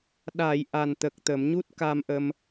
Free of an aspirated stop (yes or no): yes